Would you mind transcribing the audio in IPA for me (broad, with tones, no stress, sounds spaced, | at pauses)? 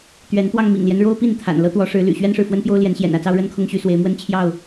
t̪ ɥ ɛ˨˦ n t̪ w ɑ˧ ŋ m ḭ˨˩ ŋ l j ɛ˦ n ɻ o˦ ʊ̯ p i˥˨ n t̪ʰ a̰˨˩ n l ɤ˦ t̪ w ɔ˨˦ ʂ ɻ̩˨˦ l y̰˨˩ ɕ ɥ ɛ˦ n ʂ ɻ̩˨ f w ə˦ n p j o˦ ʊ̯ l j ɛ˨˦ n ɕ j ɛ̰˨˩ n ä˥˨ t͡s ɑ˦ ʊ̯ ɻ ə˦ n kʰ ʊ˦ ŋ ɕ y˨˦ s w e˨˦ ɪ̯ m w ə˦ n t͡ɕʰ j ɑ˥˨ ʊ̯